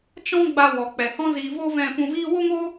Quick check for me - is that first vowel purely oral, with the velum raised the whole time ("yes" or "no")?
no